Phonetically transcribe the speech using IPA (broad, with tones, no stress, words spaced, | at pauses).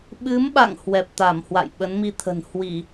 ɓɨ˨˦mɓa̰˧˨ŋ hwɛ˨˩p̚t̪a˧˩mhwa̰˧˨j ɓə˨˦nmi˧t̪ʰə̤˨˩n hwi˧˩˨